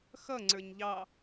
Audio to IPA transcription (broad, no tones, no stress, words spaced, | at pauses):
xʌŋ͡ǀə˞ɲ ʎɑ